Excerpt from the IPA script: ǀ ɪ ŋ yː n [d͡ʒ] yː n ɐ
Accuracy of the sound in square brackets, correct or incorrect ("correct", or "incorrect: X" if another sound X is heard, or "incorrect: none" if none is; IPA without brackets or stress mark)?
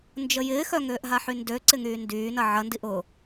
incorrect: d